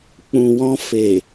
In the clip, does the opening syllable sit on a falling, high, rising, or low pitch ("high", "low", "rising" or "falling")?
low